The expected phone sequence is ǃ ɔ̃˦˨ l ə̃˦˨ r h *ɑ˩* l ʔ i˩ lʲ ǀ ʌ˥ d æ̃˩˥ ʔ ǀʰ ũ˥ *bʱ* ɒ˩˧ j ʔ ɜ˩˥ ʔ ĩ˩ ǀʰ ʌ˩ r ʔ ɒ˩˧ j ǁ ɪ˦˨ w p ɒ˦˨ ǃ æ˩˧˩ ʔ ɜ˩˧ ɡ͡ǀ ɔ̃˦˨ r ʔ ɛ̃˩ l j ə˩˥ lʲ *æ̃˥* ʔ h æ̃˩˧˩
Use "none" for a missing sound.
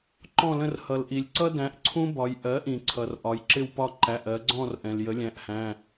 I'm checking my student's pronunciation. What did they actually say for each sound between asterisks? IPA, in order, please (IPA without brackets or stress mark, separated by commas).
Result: ʌ˩, b, æ̃˩˧˩